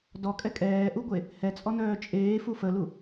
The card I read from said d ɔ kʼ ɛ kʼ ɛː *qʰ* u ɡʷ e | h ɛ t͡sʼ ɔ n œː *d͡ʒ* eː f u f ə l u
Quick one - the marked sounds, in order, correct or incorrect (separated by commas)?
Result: incorrect, incorrect